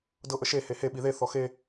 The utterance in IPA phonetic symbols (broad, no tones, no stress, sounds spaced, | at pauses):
d ɤ ʔ ə ʃ e h e h e ɓ i ð e θ ɔ x e